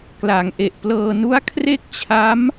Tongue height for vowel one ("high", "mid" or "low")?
low